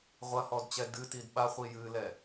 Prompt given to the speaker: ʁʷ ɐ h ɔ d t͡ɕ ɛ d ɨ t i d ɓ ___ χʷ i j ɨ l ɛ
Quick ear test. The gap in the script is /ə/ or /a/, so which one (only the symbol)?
a